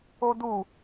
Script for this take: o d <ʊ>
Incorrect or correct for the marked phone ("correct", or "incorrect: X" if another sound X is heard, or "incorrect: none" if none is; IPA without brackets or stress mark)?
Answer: incorrect: u